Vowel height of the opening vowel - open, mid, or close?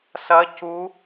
open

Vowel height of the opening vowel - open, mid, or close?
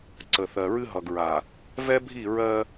mid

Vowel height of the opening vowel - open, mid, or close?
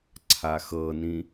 open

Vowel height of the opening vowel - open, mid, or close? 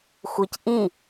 close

